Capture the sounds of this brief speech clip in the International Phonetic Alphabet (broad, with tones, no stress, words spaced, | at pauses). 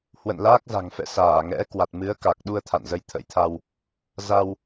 hwə̰˧˨n laː˦˥k̚za̤˨˩ŋfɛ̰˧˨ saː˧˩ ŋɛ̰˧˥ kwa˨˩t̚mɨ˨˦ə̯ka˨˩k̚ɗu˧ə̯ t̪ʰa̰˧˨nzə˧jt̪ʰə̰˧˥jt̪ʰa˧w | za˧w